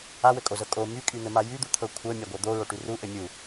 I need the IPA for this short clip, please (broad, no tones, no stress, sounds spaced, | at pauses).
a w ɘ kʼ o z ɤ kʼ o m y kʼ y n̪ ɘ m a j y d̪ u t̪ʰ ɤ kʷʰ ɤ mʲ a ɡʷ ɤ d̪ o ɹ o ʈ y r u ʔ ɘ mʲ u